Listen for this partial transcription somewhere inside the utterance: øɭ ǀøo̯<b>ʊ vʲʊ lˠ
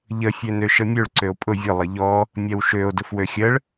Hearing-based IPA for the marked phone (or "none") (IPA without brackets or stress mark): pʼ